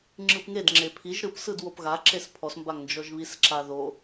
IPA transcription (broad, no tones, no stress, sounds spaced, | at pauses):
ŋ͡ǁ ɯ p ŋ e d ŋ͡ǁ e pʰ i ʒ ɾ ɯ p s ɯ d w o p ɣ a ǁ e s pʰ ɔ s m b a ŋ n d͡ʒ ɔ ʒ β i s ǁ a ð o